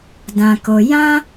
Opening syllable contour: low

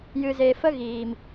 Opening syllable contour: low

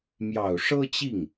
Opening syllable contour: low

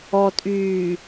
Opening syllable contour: low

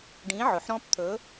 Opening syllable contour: rising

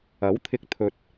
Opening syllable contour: rising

